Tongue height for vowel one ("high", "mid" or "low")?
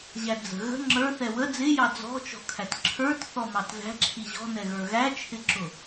low